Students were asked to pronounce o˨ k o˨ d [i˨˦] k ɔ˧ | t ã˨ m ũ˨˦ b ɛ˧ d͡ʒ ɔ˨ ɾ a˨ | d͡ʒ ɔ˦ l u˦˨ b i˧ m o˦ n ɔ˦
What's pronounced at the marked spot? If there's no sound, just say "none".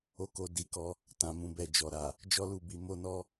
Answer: i˨˦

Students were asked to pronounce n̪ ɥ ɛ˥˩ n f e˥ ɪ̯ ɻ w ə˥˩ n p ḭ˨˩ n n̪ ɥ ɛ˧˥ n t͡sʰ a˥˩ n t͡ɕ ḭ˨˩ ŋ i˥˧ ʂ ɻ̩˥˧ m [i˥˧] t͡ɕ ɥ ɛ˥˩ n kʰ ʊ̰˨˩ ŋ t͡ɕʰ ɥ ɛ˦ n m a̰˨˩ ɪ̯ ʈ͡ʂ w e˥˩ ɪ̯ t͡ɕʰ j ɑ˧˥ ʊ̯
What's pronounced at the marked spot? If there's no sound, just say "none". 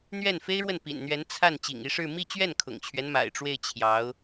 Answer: i˥˧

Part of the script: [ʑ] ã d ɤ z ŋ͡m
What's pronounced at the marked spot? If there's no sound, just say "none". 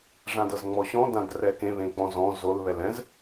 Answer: ʐ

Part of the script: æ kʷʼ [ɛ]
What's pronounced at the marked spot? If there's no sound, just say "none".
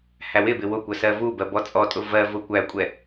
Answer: ɛ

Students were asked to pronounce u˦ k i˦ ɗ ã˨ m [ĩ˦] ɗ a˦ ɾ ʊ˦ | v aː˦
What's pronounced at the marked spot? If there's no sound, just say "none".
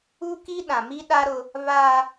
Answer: i˦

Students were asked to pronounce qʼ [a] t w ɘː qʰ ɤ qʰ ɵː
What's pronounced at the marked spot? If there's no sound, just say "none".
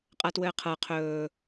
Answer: a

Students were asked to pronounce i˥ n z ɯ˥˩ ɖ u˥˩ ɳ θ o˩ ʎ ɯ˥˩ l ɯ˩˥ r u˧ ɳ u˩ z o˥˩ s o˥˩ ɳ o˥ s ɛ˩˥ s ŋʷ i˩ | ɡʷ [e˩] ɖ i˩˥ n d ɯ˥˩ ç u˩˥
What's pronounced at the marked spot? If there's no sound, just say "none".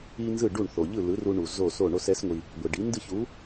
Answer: e˩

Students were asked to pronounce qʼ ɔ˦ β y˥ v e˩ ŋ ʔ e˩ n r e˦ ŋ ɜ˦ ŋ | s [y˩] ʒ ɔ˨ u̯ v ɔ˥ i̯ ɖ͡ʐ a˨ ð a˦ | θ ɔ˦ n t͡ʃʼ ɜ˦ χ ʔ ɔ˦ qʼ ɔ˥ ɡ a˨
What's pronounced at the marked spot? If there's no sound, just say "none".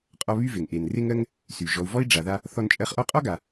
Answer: y˩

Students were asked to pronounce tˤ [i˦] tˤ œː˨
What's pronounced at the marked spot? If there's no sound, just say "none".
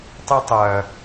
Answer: i˦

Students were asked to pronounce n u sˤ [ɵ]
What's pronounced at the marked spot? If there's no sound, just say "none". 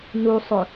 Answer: ɵ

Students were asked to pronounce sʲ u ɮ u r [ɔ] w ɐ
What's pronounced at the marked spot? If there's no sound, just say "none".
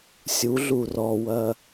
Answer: ɔ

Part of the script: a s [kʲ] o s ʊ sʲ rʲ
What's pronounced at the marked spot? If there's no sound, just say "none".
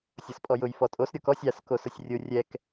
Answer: k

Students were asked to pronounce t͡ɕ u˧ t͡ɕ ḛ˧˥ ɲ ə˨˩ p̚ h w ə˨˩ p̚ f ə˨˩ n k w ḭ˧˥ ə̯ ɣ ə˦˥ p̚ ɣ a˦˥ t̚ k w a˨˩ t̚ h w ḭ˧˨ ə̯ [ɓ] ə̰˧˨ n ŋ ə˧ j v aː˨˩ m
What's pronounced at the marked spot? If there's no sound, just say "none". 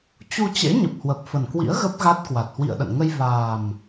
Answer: ɗ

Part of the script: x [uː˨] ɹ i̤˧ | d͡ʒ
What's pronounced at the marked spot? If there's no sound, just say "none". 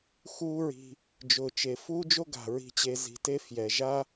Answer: uː˦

